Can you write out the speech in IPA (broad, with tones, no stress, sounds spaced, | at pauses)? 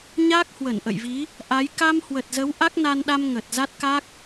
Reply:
ɲ aː˦˥ k̚ h w ə˧˩ n ʔ ə̰˧˨ j v i˨˦ | ʔ a˨˦ j k a˧ m h w ə˨˩ t̚ z ə˨˦ w ʔ a˦˥ k̚ n a˧ n ɗ a˧ m ŋ ə˨˩ t̚ z a˦˥ t̚ k a˦˥ k̚